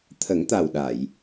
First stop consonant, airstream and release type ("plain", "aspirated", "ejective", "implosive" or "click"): aspirated